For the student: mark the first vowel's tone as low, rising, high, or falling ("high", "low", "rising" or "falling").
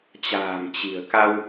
low